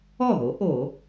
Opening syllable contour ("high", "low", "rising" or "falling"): falling